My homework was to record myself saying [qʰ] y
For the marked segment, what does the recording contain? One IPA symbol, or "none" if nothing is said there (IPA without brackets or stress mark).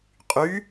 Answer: qʼ